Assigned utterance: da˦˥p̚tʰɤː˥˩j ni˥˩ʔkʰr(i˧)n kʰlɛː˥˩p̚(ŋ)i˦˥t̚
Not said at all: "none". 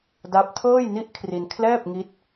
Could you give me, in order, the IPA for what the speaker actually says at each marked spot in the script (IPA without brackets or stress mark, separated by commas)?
i˧, ŋ